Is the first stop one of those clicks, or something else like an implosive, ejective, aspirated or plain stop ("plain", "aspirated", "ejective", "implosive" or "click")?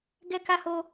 plain